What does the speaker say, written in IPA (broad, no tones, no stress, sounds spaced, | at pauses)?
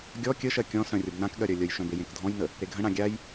ɡʲ ɔ kʲ ə ʃ ɜ kʲ ɔ̃ s œ̃ rʲ ə b n ã k ɠ ɜ ɾʲ œ lʲ ə j ʃ œ̃ b e j ẽ k dʱ ɔ̃ j n ə | ɾ e ɡʱ ə̃ ɽ ã ɡʲ a j